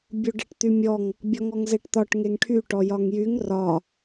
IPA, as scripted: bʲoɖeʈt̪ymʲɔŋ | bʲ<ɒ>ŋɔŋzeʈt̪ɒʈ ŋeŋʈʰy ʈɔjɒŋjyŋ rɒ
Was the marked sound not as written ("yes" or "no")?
no